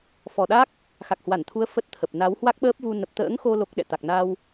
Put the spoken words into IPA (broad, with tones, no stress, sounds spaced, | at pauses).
f ɔ˨˩ ɗ a˦˥ k̚ | x a˨˩ k̚ h w a˧˩ n t̪ʰ u˨˦ ə̯ f ə˦˥ t̚ t̪ʰ ə˨˩ p̚ n a˨˦ w h w a˦˥ k̚ ɓ əː˦˥ p̚ v u˧ n ə˨˩ p̚ t̪ ə̰ː˧˥ ŋ x o˧ l o˦˥ k̚ ɗ ɛ̰˧˨ t̪ a˨˩ k̚ n a˧ w